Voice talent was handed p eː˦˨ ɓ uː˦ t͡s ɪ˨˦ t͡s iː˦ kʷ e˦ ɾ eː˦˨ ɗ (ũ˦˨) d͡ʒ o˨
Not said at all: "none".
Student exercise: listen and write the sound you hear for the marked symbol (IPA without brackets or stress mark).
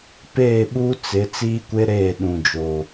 ũ˨